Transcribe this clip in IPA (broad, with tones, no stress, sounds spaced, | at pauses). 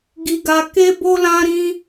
ɡ i˧ ɡ a˧ k e˦ b o˦ l ã˦ ɾ ĩ˦